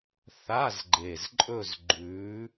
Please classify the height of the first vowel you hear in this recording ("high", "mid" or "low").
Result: low